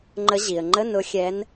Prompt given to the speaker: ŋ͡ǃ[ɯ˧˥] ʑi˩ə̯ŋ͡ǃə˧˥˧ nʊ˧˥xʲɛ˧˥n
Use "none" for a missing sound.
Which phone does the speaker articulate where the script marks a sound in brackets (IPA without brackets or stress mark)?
ə˧˥